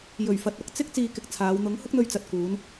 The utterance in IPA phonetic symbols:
j ɵ˨˩ ɥ f ɐ˨ t̚ ɐ˨˥ k̚ t͡s ɪ˥ k̚ t͡s iː˧ k ɪ˧ k̚ t͡sʰ aː˨˧ w n̪ ʊ˨˥ ŋ h ʊ˥ k̚ n̪ ɵ˧ ɥ t͡s ɐ˨ t̚ k uː˨˧ n

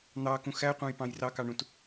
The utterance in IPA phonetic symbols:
n̪ ɑ k ũ x æ qʷ ɑ̃ j p ɑ̃ j r ɑ k ɑ ɳ ũ t

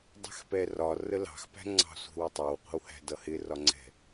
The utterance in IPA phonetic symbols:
dˤ ɛ̤ x p ɛ r ɒ r ə l ɑ̤ x p æ̤ ŋ͡ǀ ɑ̤ sʷ ɛ̤ w ʊ tˤ ɜ w qʷ ə̤ w h æ̤ d ʌ h ɪ r ɒ ŋ͡ǀ ɛ̤

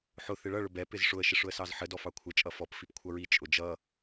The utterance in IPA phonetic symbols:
ħ ʊ θ ɪ ɭ ʌ ɭ ʊ b ɛ p ɪ z ʂ ʊ ə̯ ʃ ɪ ʂ ʊ ə̯ s ɑ z ħ ə d ɔ f ɑ kʷʰ ə t͡ʃʼ ʌ f ɔ p f i p kʷʰ ʌ ɹ i t͡ʃʼ ʊ d͡ʒ ʌ

